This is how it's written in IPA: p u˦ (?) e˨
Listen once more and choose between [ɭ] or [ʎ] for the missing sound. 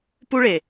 ɭ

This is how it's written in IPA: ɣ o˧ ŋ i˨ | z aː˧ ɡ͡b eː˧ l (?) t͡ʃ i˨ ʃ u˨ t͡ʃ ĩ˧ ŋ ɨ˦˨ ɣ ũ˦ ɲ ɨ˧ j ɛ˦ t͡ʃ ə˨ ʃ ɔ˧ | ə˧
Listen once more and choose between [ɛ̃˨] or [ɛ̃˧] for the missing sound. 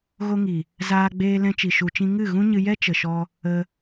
ɛ̃˧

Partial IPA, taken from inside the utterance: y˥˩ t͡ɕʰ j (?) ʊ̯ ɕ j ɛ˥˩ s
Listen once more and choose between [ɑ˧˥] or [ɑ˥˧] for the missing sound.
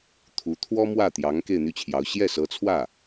ɑ˧˥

